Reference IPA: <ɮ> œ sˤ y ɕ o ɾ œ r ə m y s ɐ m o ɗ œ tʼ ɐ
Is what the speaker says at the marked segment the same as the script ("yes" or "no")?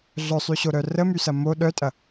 yes